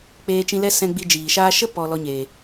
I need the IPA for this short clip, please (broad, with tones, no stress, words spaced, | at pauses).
k͡peː˧t͡ʃĩ˧lɛ˦sɛ̃˧ ɡ͡bi˧d͡ʒiː˨ʃaː˦ ʃə˦pɔ˨ lɔ˧ɲeː˨